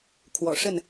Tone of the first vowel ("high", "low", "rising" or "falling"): low